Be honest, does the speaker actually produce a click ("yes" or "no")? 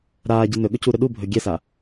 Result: no